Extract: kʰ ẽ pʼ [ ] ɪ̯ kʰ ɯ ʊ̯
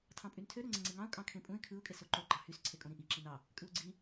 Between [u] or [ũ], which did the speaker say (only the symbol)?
ũ